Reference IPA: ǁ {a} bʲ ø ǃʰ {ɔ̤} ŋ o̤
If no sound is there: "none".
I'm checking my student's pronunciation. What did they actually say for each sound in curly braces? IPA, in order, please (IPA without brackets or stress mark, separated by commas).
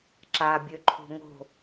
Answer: a, o̤